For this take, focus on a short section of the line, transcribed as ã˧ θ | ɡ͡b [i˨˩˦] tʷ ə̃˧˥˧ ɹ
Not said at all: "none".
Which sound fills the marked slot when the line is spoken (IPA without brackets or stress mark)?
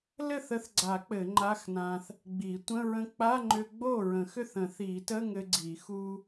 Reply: i˨˩˦